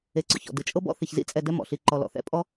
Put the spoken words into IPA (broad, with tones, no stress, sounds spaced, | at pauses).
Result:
e˨ ǀ ɔ̰˩ ç ɔ̰˩ d ɯ˩ t͡ʃʼ ɤ˦ b ɔ̰˦ θ i˩ ç z ḭ˦ t͡sʼ ɛ˨ d ɛ˦ m ɔ̰˩ ɬ i˨ ǃ ɔ˨ l ɔ̰˩ θ ɛ̰˥ pʼ ɔ˥